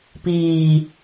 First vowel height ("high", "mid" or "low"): high